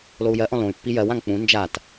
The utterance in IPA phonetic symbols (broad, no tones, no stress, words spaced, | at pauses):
lou̯jɜʔɔ̃ lõy̯pːi jɜwãŋ k͡pũ nd͡ʒat